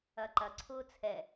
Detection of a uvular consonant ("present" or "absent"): absent